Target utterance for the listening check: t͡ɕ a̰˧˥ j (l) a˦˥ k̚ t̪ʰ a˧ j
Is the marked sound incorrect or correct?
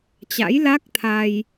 correct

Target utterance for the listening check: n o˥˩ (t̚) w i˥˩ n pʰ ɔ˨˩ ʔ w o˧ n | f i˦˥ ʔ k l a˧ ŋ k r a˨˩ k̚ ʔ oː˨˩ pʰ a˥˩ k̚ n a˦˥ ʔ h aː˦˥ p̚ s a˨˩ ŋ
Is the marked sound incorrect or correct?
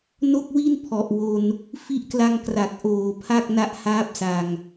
incorrect: k̚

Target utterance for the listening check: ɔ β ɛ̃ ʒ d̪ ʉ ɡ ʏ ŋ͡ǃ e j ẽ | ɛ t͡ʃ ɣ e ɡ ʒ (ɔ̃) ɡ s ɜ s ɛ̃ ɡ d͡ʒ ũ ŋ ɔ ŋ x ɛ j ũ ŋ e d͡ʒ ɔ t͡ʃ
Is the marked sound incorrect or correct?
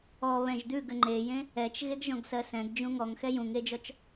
correct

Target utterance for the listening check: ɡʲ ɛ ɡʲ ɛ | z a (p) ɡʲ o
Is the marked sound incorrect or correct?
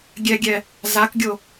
incorrect: k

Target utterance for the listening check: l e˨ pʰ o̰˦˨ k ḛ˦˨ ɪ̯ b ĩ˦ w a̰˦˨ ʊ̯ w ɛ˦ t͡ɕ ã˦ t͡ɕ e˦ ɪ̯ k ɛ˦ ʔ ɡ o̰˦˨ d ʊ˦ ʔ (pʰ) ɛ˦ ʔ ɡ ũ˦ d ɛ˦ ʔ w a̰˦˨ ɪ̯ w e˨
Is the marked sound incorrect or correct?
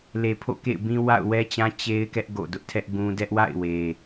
incorrect: tʰ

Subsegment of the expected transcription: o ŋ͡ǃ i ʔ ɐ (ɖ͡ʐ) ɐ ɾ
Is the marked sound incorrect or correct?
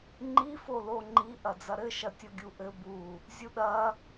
incorrect: d͡z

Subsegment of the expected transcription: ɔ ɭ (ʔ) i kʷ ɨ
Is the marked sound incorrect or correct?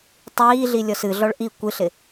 correct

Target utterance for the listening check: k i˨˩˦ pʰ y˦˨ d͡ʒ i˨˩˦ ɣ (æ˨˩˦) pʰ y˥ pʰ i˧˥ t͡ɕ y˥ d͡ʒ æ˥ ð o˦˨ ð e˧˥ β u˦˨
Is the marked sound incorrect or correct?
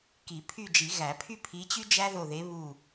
correct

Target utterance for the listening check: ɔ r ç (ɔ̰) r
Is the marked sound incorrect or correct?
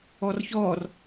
incorrect: ɔ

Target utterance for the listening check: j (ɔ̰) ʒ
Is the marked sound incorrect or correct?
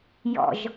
correct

